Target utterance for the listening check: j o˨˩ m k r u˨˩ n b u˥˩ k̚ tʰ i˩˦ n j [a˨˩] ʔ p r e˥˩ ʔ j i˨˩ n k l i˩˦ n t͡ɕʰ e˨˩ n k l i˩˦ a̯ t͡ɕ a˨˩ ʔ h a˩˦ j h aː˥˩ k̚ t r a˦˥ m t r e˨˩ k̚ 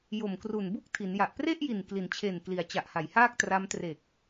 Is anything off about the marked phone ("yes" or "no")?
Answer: no